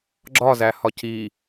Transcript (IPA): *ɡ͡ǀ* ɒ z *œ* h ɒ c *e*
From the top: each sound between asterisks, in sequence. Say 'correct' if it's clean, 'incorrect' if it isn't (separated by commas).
incorrect, incorrect, incorrect